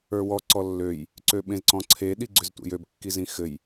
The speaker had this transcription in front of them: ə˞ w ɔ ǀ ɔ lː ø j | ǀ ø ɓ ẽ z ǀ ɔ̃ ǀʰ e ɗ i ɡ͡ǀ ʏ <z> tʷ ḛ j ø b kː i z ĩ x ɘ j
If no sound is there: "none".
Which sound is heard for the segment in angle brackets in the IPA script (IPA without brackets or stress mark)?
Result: z